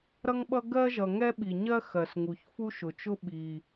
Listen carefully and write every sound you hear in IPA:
ɾ ʌ˥ ŋ ɓ ʌ˥ ɡ ɜ˥ ʒ ʌ˩ ŋ ɛ˥ ɓ i˩ ɲ ɜ˥ x ɜ˩ s ŋ u˩ ç f u˥ ʃ ʊ˩ t͡ʃ ʊ˥ ɓ i˩

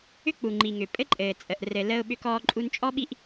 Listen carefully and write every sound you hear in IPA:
ʏ˦ k͡p u˨ ŋ͡ǃ i˨ ŋ ʏ˨ pʼ ɘ˦ ǃʼ ɘː˨ t͡sʼ ə˨ ʔ r ɘ˨ l əː˦ ʊ̯ ɓ ʏ˦ k ɔː˦ ǃʼ u˦ n t͡ʃʼ ɔ˦ ɓ i˦ ʔ

